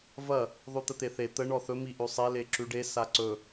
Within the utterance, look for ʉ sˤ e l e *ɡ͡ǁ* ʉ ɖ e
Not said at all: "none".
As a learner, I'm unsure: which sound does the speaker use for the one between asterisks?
ǁ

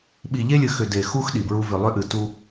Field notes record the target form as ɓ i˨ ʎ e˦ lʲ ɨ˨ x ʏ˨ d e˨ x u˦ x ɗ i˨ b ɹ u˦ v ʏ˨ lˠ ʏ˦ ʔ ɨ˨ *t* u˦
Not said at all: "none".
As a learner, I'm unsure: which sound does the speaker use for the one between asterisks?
t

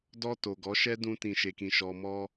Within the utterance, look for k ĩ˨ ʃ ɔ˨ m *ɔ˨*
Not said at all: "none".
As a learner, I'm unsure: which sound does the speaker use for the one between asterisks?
ɔ˧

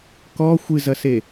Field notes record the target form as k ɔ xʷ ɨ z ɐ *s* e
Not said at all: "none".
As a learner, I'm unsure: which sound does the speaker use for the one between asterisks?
s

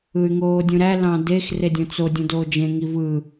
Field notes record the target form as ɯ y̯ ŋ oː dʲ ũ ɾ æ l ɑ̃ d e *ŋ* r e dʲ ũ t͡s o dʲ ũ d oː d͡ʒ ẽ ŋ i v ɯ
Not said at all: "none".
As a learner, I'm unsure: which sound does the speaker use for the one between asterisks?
x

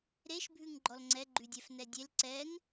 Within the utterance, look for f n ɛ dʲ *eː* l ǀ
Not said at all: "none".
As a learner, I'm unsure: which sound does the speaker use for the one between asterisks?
e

